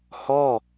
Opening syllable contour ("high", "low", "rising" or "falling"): falling